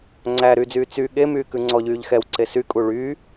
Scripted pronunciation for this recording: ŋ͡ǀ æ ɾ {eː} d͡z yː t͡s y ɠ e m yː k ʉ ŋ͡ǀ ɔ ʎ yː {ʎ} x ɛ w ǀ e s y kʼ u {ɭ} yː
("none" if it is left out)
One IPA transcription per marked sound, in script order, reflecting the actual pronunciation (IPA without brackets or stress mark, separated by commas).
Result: yː, ʎ, ɭ